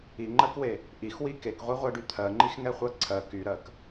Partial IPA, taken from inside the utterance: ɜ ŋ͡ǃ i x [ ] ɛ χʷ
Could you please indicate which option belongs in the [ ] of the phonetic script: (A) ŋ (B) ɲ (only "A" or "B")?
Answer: A